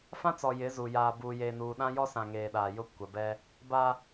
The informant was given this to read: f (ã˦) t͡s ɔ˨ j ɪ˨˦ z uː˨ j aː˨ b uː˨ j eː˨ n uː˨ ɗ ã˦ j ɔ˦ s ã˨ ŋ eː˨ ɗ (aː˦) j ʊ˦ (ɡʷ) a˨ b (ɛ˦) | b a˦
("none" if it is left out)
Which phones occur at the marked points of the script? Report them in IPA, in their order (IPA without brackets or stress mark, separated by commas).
ã˦, aː˨, kʷ, ɛ˦